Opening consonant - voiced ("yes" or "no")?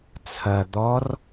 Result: no